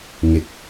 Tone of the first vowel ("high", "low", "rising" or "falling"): rising